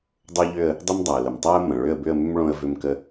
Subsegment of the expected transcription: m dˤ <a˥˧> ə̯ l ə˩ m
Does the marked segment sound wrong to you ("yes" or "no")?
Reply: yes